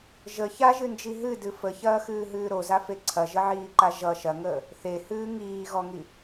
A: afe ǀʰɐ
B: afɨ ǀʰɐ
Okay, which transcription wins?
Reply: A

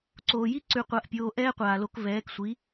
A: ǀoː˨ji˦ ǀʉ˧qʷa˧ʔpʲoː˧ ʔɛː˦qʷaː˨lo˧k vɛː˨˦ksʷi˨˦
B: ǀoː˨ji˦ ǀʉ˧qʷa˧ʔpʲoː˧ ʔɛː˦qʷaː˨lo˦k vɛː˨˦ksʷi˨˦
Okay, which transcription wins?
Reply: A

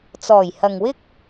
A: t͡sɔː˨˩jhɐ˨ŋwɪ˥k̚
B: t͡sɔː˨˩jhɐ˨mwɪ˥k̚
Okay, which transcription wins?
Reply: A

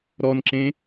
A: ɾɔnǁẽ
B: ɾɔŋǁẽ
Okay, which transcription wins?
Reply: A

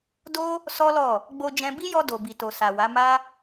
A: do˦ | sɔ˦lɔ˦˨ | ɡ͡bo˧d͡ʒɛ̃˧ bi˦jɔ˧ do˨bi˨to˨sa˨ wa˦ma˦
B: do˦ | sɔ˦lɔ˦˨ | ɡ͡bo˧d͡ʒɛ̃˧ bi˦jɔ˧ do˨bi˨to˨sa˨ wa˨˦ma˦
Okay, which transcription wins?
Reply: B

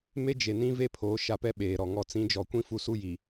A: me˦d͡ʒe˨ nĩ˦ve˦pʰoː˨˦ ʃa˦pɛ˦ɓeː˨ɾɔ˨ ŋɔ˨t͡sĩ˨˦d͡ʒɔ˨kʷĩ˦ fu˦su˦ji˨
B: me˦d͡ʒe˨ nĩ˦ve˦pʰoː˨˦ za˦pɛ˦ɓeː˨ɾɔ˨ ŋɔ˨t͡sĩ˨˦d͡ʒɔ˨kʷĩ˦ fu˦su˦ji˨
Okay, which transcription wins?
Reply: A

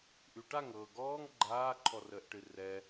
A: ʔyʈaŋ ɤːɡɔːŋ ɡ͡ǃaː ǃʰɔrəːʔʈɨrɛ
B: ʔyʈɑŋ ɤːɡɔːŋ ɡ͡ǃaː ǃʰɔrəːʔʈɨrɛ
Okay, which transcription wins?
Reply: A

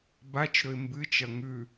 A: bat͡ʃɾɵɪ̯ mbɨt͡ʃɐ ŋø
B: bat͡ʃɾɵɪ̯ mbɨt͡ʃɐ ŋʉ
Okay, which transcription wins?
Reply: B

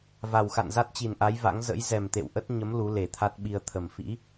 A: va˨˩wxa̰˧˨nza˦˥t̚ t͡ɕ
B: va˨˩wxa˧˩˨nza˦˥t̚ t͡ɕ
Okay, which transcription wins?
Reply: A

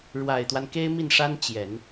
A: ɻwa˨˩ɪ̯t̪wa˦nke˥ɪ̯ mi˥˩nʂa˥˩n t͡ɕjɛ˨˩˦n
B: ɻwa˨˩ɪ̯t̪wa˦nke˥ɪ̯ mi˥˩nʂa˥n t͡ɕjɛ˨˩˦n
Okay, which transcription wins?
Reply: B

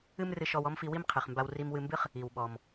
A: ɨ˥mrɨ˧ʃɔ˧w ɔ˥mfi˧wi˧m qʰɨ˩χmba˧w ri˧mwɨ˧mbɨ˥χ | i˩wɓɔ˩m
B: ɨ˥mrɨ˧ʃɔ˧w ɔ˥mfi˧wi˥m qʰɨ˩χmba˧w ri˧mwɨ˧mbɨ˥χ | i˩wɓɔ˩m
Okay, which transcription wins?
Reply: B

